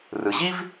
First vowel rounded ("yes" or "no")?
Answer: no